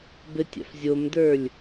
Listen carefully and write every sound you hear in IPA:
b ɘ tʲ a̰ f zʲ o m d ə˞ lʲ

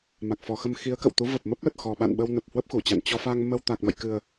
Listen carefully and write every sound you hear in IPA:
m a˨˩ k̚ f ɔ˨˩ x ə˧ m x i˨˦ ə̯ k ə̰˧˨ w t̪ u˨˦ v ə˨˩ p̚ m ə˦˥ p̚ l ə˨˩ t̚ x ɔ˨˩ ɓ a̰˧˨ n ɓ ə˧ w n ə˨˩ p̚ h w ə˦˥ p̚ x u˧˩ t͡ɕ a̰˧˨ n t͡ɕ ɔ˧ f a˧ ŋ m ə˧ w t̪ a˨˩ k̚ m ə̰˧˨ j k ɨ˨˩ ə̯

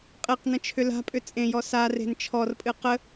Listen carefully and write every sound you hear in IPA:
qʼ e q n ə̃ t͡ʃʰ ʏ l a̤ pʼ ʏ t͡sʼ ẽ j ɔ s a r e̤ n t͡ʃʰ ɔ r pʼ ɨ q ə

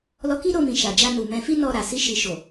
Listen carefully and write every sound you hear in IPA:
l ɔ˦ k i˦ ɾ o˧ m ĩ˨ ʃ a˨ d͡ʒ a˧ n u˨ m ɛ̃˧ f i˦ n ɔ˧ ɾ a˨ s i˧ ʃ i˨ ʃ o˨

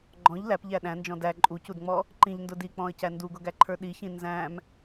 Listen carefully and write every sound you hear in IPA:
ɡ͡ǃ ɔ̃ ʎ l æ p ʎ æ ɗ æ̃ n d͡ʒ ɔ̃ d æ ǃʼ u c u d ŋ͡m ɔ | ǃ ĩ ʎ n d ʊ d i k͡p ɔ̃ ə̯ c æ n d u ɡ ʊ ɡ æ ǃʰ ə˞ ɗ i ç ĩ n z æ̃ m

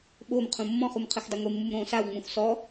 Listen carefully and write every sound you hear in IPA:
ɓ o m qʰ ũ mː ɔ̃ χ u m qʰ ɯ x dˤ ɤ ŋʷ e mː u m ɾ õː s a w ŋ͡m ũ x s ɔ

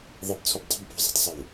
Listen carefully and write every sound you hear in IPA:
ðˤ ɛ p t͡sʰ u p dˤ i̤ m p o̤ zˤ i̤ tˤ sˤ o w

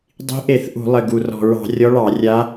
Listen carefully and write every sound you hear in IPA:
dˤ i̤˧˥ ʔ e˧˩˧ θ ʔ ṳ˧˩˧ lˠ ɘ˨˩ ɡ u˨˩ r ɔ̤˨˩ ɹ ɑ̤˧˩˧ rʲ ɔ˧˥ ɭ ɑ˧˩˧ rʲ a˧˥

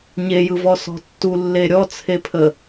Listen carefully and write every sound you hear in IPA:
ɲ e j ɯ v ɔ s ɔ̤ tː u lː e ɾʲ ɔ t͡sʰ e pʰ ə

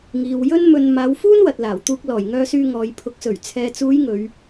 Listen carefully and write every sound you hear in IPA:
ŋ iː˨ w j ɵ˥ n m ɵ˧ n m aː˨˧ w f uː˥ n w ɐ˨ t̚ l aː˨˩ w t̪ uː˧ k̚ l ɔː˨˩ j ŋ œː˧ s yː˧ ŋ ɔː˨ j pʰ ʊ˨˥ k̚ s ɵ˨˩ ɥ t͡sʰ ɛː˨ t͡s uː˨˧ j ŋ ɵ˨˧ ɥ

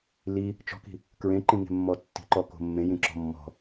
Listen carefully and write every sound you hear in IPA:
l i | t͡ʃ ɔ̤ k i̤ | k ɹ ẽ ǃ ĩ ŋ e̤ mː ɔ tː i̤ ǃ ɔ k o̤ mː ẽ j ĩ ǁ ɔ̤ mː ɔ̤

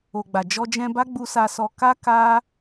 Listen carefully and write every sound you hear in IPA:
o˨ ɡ͡b a˨ d͡ʒ ɔ˧ d͡ʒ ɛ̃˧ b a˦ ɡ͡b u˧ s a˧ s ɔ˧ k a˦ k a˦

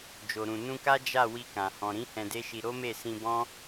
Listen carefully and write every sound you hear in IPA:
d͡ʒ o˨ ɾ ũ˨ n ũ˧ k a˦ d͡ʒ a˦˨ w i˧ k ã˨ h ɔ̃˨ ɾ ĩ˨˦ h ɛ̃˧ d e˦ ʃ i˧ ɾ o˦ m e˦˨ s ĩ˧ b ɔ̃˦

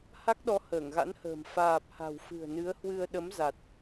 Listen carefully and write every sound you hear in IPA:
h a˦˥ k̚ ɗ ɔ˨˦ h əː˧˩ ŋ ɣ a̰˧˥ n h ə̤ː˨˩ m f aː˨˩ p̚ h a̤˨˩ w f ɨ̤˨˩ ə̯ n ɨ˨˦ ə̯ h w ɨ˧ ə̯ ɗ ə˨˦ m z a˨˩ t̚

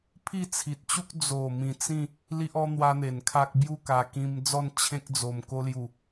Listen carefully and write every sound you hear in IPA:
pʰ i˥˧ t͡sʰ i˨ t̚ t͡ɕ u˦ k̚ d͡z o˨˩ m ĩ˨˩ t͡s ĩ˥˧ | l i˦ ʔ ɔ˦ n̪ w a˦ n̪ e˨˩ n kʰ a˦ k̚ b j u˥˧ k a˨˩ k ĩ˧ m d͡z ɔ˥˧ n t͡ɕʰ ẽ˦ k̚ d͡z o˨˩ m k o˧ l j u˨˩

